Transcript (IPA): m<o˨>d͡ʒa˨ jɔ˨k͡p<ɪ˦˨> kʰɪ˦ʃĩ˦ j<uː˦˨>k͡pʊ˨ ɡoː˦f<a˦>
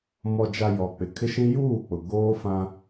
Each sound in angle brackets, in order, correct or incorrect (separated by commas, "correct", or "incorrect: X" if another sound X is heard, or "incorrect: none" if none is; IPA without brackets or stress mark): incorrect: ɔ˨, incorrect: ɪ˨, correct, incorrect: ã˦